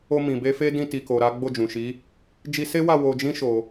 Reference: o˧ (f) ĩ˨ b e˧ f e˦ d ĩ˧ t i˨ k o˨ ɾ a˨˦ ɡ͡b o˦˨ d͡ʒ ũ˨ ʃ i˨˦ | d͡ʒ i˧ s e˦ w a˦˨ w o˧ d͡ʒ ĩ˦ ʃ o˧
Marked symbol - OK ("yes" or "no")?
no